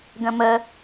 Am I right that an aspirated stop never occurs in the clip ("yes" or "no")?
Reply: yes